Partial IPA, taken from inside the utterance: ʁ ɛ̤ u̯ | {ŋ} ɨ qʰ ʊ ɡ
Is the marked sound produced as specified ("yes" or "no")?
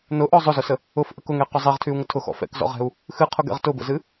no